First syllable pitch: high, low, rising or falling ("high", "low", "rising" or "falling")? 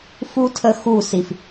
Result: high